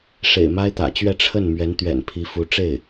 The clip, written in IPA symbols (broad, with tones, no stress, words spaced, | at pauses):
ʂḛ˨˩ɪ̯ma˥ɪ̯t̪ä̰˨˩t͡ɕɥɛ˥˧ ʈ͡ʂʰə˥˩nmɥɛ˧˥n t̪ɥɛ̰˨˩npʰi˧˥ fu˧˥ʈ͡ʂe˥˩ɪ̯